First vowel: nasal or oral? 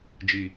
oral